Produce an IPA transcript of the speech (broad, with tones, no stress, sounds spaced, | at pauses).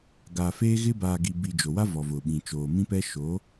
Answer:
ɡ a˨ f eː˦ ɣ ɪ˦ b aː˨ ɡ i˨ b i˨ d͡ʒ o˨ w a˦ v ɔ˨ v ʊ˨ ɓ ĩ˨ t͡ʃ oː˨ m ĩ˦ p ɛ˦ ʃ o˨˦